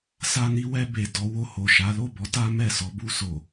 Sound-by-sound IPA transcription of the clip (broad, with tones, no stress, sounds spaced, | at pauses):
s a˧ n i˧ w ɛ˧ b e˨ d ɔ˨˦ w o˧ h o˨ ʃ a˨˦ l o˦˨ b ɔ˨˦ t a˦ m ɛ˦˨ s ɔ˨˦ b u˧ s o˨